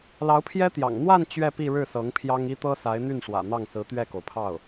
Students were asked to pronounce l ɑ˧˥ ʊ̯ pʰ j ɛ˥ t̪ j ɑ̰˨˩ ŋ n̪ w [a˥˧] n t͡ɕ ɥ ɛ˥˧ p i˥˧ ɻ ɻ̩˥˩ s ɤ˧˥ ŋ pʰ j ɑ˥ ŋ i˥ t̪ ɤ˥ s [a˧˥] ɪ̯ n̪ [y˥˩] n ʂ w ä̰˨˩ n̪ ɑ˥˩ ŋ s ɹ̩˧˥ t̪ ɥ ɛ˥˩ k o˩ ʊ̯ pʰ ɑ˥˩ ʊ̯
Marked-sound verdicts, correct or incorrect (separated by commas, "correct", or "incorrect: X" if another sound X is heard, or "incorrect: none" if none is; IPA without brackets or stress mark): correct, correct, correct